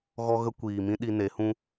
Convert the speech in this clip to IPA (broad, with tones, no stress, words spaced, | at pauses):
ɣɔ˦ɣə˦ kʷiː˨mĩ˦ɗi˧ ne˨˦hũ˦